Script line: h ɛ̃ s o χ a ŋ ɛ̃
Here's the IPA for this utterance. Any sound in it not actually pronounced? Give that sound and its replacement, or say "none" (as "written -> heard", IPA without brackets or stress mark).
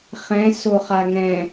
h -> χ